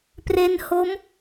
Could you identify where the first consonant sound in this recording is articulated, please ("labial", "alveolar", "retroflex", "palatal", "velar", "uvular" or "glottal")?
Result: labial